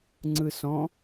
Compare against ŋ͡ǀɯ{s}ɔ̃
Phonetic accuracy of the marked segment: correct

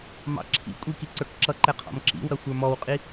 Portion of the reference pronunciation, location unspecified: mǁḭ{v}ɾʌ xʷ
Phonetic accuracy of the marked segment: incorrect: w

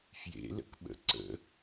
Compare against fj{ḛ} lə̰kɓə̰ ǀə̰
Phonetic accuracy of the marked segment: correct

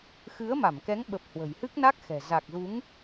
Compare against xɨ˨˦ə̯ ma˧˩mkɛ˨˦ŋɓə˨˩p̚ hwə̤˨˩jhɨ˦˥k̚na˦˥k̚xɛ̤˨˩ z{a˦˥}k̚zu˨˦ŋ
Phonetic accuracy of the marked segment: incorrect: a˨˩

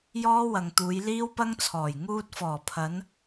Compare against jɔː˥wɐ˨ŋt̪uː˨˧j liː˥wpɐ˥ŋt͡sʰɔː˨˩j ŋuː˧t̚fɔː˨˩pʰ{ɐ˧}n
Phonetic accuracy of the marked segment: incorrect: ɐ˨˧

